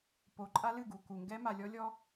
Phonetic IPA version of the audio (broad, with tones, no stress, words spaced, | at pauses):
po˨ǃʼa˦lɨ˦˨ɡu˨ ku˨ŋɡɛ˦ ma˨lʲɔ˦ lʲɔ˦